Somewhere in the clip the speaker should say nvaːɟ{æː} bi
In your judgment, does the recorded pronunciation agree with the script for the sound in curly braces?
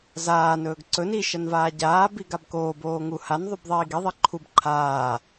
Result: no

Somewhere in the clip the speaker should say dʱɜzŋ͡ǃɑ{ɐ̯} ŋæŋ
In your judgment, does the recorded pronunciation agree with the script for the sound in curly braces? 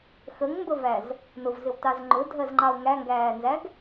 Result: no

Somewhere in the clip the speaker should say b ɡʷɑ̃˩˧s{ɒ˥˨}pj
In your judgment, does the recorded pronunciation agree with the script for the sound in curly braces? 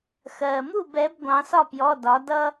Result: yes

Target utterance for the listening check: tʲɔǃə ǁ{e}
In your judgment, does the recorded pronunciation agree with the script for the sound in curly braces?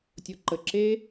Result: yes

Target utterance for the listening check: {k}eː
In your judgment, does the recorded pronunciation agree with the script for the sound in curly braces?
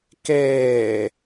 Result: yes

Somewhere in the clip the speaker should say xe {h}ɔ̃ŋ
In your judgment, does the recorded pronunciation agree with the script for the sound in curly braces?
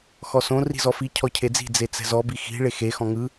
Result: no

